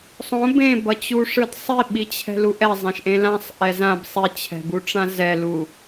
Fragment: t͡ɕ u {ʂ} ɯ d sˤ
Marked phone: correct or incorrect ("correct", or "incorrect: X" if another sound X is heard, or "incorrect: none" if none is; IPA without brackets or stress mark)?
correct